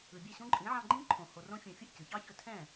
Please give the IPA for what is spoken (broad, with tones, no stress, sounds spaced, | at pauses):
ɯ˩ bʲ ɛ˥˩ ɕ õ˥ ǃʼ ĩ˩˥ ʕ ɑ̃˧ ɡ͡ǃ ĩ˥ ǃʰ õ˩ h o˧ r õ˥ fʲ õ˧ fʲ ɯ˥˩ ʔ c ɯ˩ ç ɑ˥ ç ɵ˧ tʰ ɛ̃˥˩